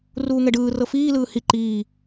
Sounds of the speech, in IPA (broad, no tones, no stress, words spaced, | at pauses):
ruːŋɛɖɯː rɤfiː lɯːhi ǃiː